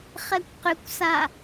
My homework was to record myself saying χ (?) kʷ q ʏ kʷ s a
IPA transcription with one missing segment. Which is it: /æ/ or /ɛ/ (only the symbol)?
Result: ɛ